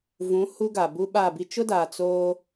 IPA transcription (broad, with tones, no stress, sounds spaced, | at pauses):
v ũ˨˦ h u˦ ɡ a˨ b u˦ ɓ aː˦˨ b i˦ t͡ʃ ʊ˦ d aː˨ t͡s oː˦